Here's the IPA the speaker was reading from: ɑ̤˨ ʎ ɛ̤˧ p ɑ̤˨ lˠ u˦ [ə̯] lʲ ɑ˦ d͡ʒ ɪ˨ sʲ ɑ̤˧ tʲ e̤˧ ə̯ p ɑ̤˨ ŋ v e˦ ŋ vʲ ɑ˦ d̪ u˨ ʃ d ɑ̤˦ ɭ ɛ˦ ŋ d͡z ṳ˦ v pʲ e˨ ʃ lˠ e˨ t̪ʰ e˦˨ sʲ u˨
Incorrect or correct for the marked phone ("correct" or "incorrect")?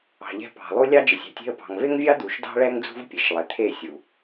incorrect